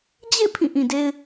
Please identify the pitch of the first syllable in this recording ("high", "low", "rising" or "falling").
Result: falling